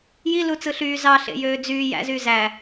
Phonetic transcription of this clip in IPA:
j i l u t͡s ɯ ɬ yː z ɑ ɬ ḛ j øː d͡z yː j æ̰ z yː z æ

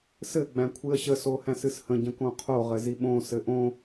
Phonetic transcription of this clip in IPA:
s ɘ ɡ͡b æ̃ kʷʰ ɨ ə̯ ɕ ə s o h æ̃ s ɨ s h ə̃ ɟ ə̃ k õ qʰ o ʁ ɘ z i ɓ õ s ɘ ʔ õ

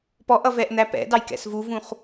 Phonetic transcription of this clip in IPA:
p ɔ ʔ ʌ v ɛ ʔ n̪ æ p ɛ̰ d ɑ j k ɛ̰ s v u v ũ χ

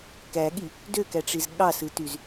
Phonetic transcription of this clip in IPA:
k æ ɠ i | d ø k æ ʈ͡ʂ i z ɠ ɑ s ɯ t y z

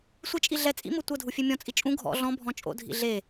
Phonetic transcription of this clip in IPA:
sʷ i t͡ʃʼ i ɮ ɛ t͡sʼ ḭ m ɤ tʷ ɤ dʱ u fʲ e mʲ ɔ̃ t͡sʼ i t͡ʃʼ ũ ɡʱ ɔ̰ ɮ ɔ̃ bʱ ɔ̃ t͡ʃʼ o̰ dʱ ḭ ɮ e

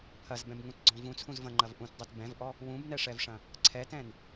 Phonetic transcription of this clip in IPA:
pʰ ɐ z b ɛ̃ b ŋ ũ t ɡ͡ǀ ɔ̃ v ũ t͡sʰ ũ z v ɐ̃ ŋ͡ǃ ɐ v ʔ ũ t dˤ u t b ɛ̃ v ʔ ɔ | w ũ b n ɛ ʂ ɛ v ʂ ɐ̃ | ǀʰ ɛ t ɛ̃ n

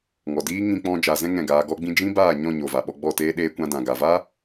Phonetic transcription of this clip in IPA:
ŋ ɔ˨ d iː˦ ŋ ĩ˧ k͡p ɔ̃˧ d͡ʒ a˨ z ɛ̃˧ ŋ ɛ̃˦˨ ɡ aː˧ ɡ ɔ˦ ɡ͡b ĩ˦ d͡ʒ ĩ˦ b aː˦˨ ɲ ɔ̃˦˨ ɲ o˨ v a˨ ɓ ɔ˧ ɡ͡b ɔ˦˨ t eː˦ ɗ eː˧ kʷ ã˧ d ã˨ ɡ a˨ v a˦

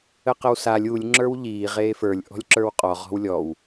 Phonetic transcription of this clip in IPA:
ə q ə w s a lʲ u lʲ ŋ͡ǁ ə˞ w ʎ iː ʁ eː f ə˞ lʲ ʔ ɔ̤ lʲ ǁ ə˞ w qʼ ɔ ʁ ɔ̤ w lʲ ɔ w

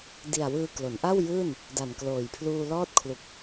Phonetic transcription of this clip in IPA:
d i˨˩ a̯ w ɯː˧ k l o˩˦ n ʔ a˥˩ w j ɯː˥˩ n | d a˨˩ n k l oː˨˩ j pʰ l uː˧ l ɔː˦˥ t̚ kʰ l u˨˩ k̚

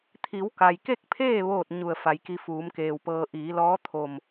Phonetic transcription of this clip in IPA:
t̪ʰ i˩˧ w k a˩ j k e˥˨ k̚ pʰ eː˥˨ ʋ oː˥˨ t̚ ɲ u˧˩ ə̯ f a˩˧ j k i˧ f uː˩˧ m k eː˩ w p ɤː˧ ʔ iː˩˧ l ɔː˧˥ t̪ʰ o˧˩ m

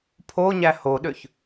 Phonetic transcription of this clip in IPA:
pʰ o ɲ æ h o ɗ ø ç

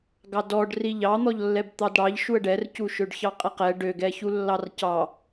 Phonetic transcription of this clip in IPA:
ɡ ɑ d ɔ ɖ r i ʎ ɑ n̪ ɔ ʎ lː ɛ b t̪ ɑ d ɽ ɑ ʎ ʃ u ə̯ ɖ ɛ r c u ʃ ø ɖ ç ɑ qʼ ɛ q ɛ ɖ ø ɡ ɛ ç u lː ɑ r c ɑ

